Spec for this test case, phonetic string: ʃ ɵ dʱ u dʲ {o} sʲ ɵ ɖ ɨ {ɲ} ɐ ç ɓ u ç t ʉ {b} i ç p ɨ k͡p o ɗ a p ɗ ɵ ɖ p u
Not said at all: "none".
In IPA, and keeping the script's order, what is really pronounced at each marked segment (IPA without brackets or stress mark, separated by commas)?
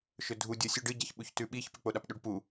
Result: o, ɟ, ɓ